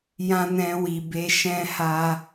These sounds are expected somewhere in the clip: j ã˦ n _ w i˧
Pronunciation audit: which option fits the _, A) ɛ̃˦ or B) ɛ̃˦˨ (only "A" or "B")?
A